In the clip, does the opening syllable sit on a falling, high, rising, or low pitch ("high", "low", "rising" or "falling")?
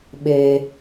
low